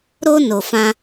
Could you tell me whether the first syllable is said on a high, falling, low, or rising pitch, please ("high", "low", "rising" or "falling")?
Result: high